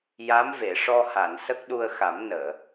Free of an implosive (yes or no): no